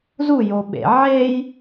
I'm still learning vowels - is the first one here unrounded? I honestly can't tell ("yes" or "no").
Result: no